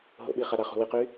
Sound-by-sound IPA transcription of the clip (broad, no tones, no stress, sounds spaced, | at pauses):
ɦ o̰ ɓ i χ a ɾ a χ ṳ w i q y